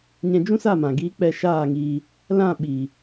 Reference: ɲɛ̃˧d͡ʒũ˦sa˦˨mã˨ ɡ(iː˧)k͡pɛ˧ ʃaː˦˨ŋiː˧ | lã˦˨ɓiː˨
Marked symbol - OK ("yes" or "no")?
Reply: yes